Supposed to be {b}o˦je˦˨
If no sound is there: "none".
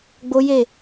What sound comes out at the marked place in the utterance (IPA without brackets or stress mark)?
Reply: ɡ͡b